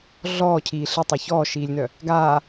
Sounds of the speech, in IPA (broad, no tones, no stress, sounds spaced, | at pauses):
ɮ ɔː cʰ iː ɬ ə tˤ u ç ɔː ʃ iː lʲ n œ | ɡ aː